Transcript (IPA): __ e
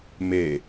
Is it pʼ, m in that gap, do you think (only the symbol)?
m